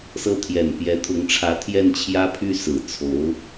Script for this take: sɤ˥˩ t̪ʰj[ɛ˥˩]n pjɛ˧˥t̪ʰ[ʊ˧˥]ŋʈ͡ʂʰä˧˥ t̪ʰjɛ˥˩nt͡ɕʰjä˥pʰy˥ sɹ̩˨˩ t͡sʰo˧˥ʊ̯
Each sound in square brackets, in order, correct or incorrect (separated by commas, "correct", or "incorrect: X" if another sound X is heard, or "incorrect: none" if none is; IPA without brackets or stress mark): incorrect: ɛ˨˩, correct